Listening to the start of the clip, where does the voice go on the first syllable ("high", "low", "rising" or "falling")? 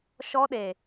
high